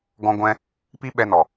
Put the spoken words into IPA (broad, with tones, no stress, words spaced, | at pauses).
ɡɔ̃˧ɡʷɛ̃˧ | pi˦ɓɛ˧nɔ˨